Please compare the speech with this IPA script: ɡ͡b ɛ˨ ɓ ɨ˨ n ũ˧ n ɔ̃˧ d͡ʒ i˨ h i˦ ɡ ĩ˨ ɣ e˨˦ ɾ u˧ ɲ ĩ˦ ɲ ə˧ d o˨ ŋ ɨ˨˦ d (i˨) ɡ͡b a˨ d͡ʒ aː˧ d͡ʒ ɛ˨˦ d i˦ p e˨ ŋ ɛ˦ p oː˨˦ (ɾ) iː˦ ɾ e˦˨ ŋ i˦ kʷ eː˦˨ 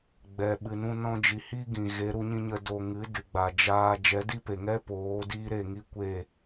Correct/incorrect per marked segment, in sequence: incorrect: ɨ˨, incorrect: d

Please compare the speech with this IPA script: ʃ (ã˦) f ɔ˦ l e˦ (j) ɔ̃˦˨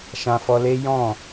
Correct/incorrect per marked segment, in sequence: correct, correct

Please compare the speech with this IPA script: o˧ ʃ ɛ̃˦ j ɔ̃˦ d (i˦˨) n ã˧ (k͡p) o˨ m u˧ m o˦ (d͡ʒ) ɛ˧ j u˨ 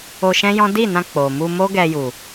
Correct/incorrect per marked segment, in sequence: correct, correct, incorrect: ɡ

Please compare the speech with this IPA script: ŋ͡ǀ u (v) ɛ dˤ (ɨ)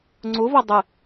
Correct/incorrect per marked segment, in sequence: correct, correct

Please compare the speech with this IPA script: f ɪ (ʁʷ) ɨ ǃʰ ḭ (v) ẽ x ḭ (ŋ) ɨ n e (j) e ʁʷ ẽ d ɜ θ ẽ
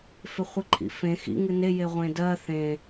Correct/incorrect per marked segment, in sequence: incorrect: χʷ, incorrect: f, correct, correct

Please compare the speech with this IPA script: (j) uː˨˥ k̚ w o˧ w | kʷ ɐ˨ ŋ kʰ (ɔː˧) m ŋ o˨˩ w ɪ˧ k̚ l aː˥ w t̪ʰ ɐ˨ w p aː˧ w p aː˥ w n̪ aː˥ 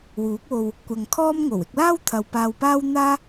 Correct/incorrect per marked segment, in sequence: incorrect: w, incorrect: ɔː˥

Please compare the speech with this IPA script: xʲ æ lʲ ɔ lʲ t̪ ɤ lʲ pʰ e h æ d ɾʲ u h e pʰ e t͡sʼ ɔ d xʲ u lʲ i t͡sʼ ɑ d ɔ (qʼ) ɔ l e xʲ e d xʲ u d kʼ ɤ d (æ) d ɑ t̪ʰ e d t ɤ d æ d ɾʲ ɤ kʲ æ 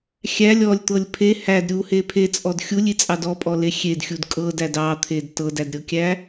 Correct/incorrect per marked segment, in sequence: incorrect: pʼ, correct

